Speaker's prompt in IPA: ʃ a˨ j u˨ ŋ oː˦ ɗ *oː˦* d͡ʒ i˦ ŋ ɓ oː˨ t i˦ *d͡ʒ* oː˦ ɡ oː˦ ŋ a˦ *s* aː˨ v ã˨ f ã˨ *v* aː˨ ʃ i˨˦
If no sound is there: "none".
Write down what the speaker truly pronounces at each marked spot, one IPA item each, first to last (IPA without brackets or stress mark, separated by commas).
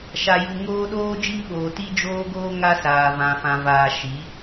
oː˦, d͡ʒ, s, v